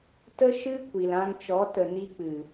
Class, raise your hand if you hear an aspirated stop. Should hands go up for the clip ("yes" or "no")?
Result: no